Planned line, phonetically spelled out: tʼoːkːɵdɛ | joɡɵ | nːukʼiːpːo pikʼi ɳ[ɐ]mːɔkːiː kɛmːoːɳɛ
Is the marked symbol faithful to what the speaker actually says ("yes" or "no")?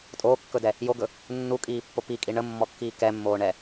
no